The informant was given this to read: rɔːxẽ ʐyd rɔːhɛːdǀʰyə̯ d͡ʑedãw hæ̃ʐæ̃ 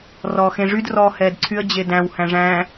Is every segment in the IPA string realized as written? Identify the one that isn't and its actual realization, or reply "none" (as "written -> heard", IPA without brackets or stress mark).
ã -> æ̃